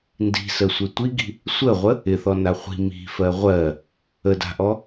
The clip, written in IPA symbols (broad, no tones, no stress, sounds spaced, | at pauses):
n d i̤ s ə sʷ e tʷ i ɡ i̤ | sʷ ə ʁʷ ə | ɪ θ ɔ n a χʷ i̤ m i̤ f ɜ ʁʷ ɜ | ə d a̤ ʔ ɔ